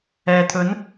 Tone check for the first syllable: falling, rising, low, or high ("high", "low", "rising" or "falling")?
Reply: low